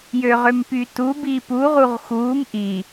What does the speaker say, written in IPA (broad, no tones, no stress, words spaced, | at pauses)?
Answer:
jøʁømpytu bipu ʁuʁxuːm ʔi